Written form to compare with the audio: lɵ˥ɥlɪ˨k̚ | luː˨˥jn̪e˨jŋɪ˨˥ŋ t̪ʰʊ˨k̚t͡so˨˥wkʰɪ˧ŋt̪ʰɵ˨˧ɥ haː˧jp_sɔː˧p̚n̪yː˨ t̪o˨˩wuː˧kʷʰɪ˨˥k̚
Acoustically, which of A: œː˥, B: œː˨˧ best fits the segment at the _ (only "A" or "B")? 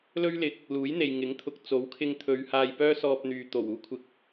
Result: A